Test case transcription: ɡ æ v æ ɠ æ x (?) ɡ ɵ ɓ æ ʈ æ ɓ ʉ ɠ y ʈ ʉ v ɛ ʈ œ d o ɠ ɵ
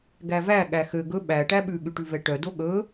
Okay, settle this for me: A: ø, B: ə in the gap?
A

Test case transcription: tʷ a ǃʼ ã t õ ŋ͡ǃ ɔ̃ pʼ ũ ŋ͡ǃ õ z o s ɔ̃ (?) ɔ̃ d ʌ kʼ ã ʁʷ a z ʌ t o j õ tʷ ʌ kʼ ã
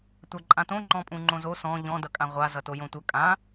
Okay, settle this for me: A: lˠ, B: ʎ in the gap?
B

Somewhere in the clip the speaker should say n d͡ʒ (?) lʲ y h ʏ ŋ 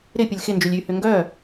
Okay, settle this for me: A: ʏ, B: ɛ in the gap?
A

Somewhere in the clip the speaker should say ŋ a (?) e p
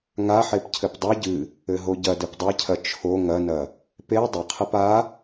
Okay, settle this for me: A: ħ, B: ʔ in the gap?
A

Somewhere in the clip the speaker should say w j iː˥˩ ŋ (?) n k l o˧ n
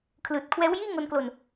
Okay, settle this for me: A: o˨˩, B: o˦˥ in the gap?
B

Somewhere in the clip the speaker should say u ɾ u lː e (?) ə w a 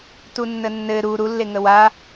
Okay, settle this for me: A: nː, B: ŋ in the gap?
B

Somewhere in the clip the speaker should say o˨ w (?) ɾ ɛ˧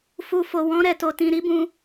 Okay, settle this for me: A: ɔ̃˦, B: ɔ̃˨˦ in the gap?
B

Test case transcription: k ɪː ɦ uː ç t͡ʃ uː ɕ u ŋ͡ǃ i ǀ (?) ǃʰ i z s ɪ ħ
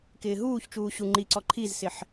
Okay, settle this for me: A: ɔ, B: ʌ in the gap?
A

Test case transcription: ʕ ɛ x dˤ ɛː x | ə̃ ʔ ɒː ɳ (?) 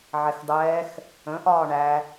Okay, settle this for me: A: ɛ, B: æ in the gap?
B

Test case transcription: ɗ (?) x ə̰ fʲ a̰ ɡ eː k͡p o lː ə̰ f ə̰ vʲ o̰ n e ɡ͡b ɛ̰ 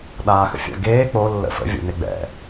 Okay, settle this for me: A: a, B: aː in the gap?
B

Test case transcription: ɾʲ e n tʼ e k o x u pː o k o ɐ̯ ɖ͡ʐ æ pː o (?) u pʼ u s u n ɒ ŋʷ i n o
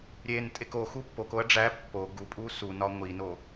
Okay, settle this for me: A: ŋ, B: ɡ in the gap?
B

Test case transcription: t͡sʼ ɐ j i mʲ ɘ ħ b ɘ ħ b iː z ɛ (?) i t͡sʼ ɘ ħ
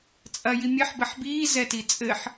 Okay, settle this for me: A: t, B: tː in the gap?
A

